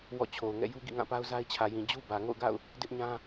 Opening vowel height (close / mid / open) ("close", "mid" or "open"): mid